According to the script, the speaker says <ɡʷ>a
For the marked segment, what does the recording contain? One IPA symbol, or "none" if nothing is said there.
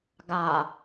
ɡ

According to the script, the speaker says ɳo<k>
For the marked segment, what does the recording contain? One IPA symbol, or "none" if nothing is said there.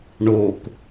k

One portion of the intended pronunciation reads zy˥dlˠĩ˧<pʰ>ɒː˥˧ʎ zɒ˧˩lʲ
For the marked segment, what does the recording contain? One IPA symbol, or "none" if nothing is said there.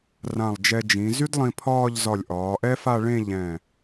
pʰ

